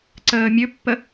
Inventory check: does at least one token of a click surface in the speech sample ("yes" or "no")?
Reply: yes